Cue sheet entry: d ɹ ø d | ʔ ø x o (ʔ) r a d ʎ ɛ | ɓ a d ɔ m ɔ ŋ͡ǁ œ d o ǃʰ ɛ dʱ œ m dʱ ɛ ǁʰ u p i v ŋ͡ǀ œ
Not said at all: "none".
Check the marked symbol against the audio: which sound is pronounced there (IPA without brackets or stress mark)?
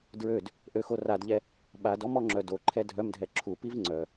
none